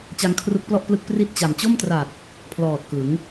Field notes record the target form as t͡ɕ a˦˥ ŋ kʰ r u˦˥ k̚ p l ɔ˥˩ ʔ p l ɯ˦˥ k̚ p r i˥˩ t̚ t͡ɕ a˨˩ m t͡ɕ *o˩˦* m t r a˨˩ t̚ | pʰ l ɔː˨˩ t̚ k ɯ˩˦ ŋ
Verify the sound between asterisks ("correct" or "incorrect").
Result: incorrect